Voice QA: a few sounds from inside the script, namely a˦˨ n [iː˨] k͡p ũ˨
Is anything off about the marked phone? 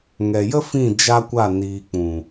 no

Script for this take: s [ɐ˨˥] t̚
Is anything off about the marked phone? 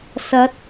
no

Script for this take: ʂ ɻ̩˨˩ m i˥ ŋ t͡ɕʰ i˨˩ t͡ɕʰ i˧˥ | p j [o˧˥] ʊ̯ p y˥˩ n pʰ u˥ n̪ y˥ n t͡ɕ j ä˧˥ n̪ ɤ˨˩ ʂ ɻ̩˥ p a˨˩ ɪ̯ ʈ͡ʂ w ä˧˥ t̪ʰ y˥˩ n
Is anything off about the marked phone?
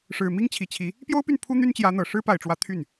yes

